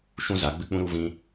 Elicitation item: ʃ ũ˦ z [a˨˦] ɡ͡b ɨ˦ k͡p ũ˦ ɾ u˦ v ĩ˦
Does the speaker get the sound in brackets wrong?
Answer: no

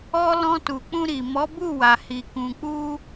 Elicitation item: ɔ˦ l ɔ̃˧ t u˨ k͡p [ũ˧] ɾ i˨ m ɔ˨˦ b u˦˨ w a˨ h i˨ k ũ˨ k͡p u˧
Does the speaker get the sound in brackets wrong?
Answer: no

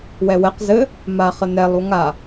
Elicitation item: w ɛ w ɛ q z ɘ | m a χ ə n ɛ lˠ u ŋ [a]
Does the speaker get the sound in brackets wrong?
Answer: no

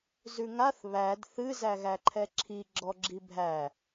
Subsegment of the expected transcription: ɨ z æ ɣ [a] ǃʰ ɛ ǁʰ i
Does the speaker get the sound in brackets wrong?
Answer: yes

